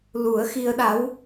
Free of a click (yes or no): yes